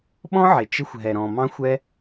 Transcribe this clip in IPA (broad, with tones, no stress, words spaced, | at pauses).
ɓɔ̃˦ʕɪ˨t͡ʃɪ˧xʷ ɦɛ˨ɾɔ̃˨ mɑ̃˦xʷ ɛ˦